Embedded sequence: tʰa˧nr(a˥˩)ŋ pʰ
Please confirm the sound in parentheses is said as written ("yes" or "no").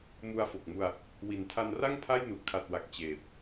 yes